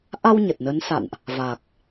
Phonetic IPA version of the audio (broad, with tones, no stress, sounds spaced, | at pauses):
ʔ a˧ w ɲ ə˨˩ t̚ n ə˨˦ n s a̰˧˨ n ʔ | v a˨˩ k̚